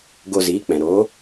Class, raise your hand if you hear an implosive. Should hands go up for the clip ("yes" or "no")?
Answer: no